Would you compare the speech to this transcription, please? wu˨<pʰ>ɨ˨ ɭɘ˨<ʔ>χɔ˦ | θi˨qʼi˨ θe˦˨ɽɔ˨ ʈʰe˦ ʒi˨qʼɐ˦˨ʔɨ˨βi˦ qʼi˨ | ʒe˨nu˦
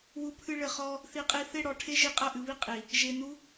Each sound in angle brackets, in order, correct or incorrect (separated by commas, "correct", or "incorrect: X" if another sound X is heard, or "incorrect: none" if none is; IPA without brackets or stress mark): correct, incorrect: none